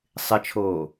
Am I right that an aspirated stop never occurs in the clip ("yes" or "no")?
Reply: no